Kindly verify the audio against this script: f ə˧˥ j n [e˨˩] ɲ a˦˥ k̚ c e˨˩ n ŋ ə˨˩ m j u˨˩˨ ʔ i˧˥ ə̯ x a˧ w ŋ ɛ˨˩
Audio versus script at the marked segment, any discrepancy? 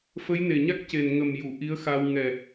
no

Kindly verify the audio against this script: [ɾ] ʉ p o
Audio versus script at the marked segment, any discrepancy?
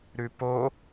no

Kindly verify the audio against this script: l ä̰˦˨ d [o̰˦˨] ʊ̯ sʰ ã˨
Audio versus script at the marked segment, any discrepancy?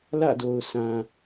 yes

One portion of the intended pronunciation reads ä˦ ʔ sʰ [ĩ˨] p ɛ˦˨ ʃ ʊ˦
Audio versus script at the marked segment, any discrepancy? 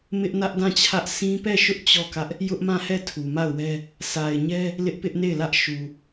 yes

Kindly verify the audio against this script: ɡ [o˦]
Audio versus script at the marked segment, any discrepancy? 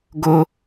no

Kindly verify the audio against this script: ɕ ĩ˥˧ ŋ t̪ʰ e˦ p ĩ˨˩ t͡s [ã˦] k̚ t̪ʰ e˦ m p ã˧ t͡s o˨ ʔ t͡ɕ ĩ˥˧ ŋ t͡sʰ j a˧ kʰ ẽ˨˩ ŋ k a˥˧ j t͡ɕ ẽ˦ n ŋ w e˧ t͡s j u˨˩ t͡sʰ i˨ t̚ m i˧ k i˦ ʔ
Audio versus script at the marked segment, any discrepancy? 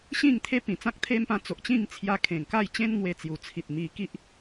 no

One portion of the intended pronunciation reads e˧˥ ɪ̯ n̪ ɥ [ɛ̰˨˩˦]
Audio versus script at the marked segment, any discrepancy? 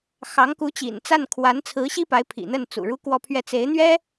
yes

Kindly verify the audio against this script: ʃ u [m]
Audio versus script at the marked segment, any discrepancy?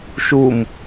no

